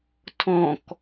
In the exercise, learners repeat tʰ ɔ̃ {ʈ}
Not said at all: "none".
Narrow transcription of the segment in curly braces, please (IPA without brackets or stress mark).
k